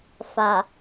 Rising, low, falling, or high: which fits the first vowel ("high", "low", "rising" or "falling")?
low